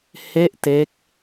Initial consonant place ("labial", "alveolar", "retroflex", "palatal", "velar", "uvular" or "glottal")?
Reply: glottal